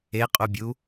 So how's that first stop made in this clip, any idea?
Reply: ejective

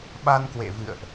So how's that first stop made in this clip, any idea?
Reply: implosive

